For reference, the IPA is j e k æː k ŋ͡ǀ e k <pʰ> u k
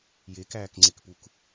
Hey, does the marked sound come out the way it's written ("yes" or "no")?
no